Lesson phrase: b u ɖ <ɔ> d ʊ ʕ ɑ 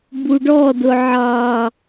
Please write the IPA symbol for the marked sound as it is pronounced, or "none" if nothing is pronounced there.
ɔ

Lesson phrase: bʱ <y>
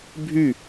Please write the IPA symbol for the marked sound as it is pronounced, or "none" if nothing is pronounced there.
y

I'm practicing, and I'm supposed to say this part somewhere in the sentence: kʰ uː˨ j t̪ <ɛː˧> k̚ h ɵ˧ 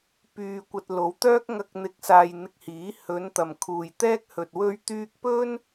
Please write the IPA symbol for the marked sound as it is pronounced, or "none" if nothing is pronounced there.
ɛː˥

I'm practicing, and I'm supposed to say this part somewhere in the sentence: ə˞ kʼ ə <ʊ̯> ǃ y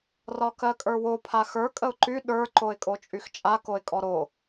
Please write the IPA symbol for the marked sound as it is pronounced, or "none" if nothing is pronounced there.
ʊ̯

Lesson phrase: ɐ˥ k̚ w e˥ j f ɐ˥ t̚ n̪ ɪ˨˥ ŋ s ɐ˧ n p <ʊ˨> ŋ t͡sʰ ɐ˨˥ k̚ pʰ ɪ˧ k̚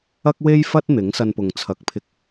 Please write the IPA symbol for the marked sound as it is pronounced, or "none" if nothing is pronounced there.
ʊ˨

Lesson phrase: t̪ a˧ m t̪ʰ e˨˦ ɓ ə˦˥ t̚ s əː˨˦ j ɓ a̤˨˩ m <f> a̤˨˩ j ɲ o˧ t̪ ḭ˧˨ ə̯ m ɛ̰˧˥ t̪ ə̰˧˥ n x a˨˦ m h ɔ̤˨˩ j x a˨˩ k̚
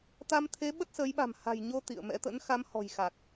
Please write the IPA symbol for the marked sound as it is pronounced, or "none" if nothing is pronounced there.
h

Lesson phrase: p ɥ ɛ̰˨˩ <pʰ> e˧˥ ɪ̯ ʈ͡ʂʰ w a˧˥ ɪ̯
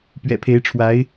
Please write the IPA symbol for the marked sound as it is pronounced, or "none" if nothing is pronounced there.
pʰ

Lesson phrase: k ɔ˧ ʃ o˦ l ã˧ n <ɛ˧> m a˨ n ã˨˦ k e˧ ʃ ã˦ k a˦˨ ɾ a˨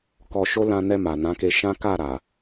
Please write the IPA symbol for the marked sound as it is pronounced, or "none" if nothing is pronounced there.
ɛ˧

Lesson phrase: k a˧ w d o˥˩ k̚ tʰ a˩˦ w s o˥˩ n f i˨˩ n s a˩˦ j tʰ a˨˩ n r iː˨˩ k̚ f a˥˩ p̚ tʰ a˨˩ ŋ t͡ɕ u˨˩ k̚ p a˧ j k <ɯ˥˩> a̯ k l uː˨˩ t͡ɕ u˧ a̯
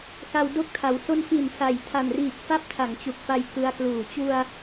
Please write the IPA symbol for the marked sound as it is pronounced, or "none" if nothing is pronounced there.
ɯ˧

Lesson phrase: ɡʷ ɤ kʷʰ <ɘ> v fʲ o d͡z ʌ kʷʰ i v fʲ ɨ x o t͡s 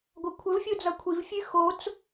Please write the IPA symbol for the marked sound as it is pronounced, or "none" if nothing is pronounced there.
ɘ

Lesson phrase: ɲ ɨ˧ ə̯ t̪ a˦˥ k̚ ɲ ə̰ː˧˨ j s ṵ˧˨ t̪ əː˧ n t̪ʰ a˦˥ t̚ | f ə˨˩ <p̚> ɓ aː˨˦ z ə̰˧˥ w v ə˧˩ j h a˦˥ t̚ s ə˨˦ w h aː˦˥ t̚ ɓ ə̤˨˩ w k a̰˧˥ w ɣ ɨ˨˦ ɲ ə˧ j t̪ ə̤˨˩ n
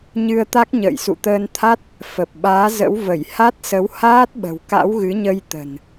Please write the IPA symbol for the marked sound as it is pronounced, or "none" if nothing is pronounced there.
p̚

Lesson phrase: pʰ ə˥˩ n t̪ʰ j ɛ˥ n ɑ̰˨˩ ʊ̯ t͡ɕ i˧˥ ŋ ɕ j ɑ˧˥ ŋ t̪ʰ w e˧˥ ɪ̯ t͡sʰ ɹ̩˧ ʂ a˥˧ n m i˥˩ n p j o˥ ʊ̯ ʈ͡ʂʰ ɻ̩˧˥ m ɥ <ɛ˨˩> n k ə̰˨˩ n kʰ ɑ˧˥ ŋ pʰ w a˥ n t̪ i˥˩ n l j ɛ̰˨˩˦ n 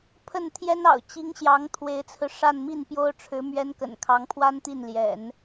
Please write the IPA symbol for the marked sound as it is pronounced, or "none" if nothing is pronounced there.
ɛ˥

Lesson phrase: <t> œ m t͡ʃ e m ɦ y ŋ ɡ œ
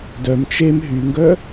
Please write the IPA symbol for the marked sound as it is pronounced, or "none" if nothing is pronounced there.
d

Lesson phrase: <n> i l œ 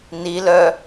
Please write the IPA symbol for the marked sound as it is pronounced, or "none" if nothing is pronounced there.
n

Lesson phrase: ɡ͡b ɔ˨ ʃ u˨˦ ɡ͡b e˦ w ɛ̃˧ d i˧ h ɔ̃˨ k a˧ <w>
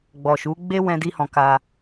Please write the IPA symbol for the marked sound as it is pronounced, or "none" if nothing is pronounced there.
none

